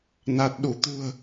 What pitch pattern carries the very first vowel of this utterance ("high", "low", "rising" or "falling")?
low